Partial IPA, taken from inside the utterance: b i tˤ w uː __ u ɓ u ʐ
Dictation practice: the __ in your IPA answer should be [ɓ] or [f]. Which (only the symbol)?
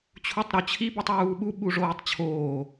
ɓ